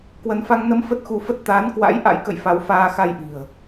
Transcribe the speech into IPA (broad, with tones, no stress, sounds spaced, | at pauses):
k w ə˨˦ n f a˧ ŋ n ə˧ m f ə˦˥ t̚ x u˧ f ə˦˥ t̚ t̪ aː˨˦ n k w a̰˧˥ j ʔ a̰˧˥ j k ə̰˧˨ j f a˨˦ w f aː˧ x a˧ j ʔ i̤˨˩ ə̯